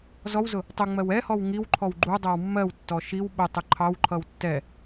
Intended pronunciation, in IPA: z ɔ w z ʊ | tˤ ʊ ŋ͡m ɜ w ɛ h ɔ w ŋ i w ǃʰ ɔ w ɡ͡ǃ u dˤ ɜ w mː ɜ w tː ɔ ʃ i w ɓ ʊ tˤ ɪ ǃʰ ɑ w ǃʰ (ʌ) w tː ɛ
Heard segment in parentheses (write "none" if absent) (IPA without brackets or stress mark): ʌ